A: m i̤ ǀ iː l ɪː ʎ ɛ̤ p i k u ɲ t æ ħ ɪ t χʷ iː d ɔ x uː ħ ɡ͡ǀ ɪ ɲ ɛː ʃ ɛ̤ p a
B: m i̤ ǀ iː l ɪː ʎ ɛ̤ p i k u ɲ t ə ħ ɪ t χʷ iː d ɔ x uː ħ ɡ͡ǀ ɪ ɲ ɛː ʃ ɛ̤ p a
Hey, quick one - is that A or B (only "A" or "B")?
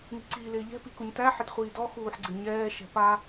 A